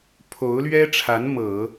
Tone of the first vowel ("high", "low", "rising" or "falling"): rising